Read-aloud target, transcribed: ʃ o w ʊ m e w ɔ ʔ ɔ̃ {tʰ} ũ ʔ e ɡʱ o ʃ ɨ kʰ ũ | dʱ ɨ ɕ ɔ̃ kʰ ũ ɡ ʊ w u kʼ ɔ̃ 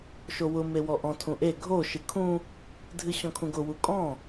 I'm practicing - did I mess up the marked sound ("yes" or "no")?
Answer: no